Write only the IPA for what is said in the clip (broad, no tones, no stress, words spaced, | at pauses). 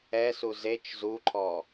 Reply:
ɛsu zet͡ʃ zuǃʰɔ